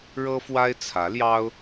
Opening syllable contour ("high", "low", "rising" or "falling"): high